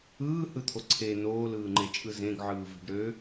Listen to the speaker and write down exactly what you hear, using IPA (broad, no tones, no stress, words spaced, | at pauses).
ɯːhɯt̪ʰo ǀʰe noːlɯːŋ͡ǃet͡ʃʼɯ zẽɡʕɯːve̤ɖ ɾø